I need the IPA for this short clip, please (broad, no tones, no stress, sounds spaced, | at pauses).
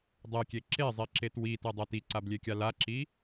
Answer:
dˤ e kʲ e ǁ e zˤ i ǁ e t w i t e dˤ ɛ t i ǀ a b lʲ e kʲ a l a ǁ i